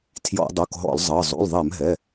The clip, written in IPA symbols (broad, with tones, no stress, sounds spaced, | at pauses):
tʰ j ɔ̰˧˩˧ dˤ u˩˧˩ k ɦ ɔ̰˧˩˧ l zˤ ɤ˩˧˩ zˤ ṵ˩˧˩ l ðˤ ɛ˧˩˧ m ɦ ɛ˩˧˩